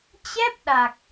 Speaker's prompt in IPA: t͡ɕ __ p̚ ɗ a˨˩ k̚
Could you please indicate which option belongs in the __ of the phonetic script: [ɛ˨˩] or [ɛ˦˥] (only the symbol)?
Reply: ɛ˦˥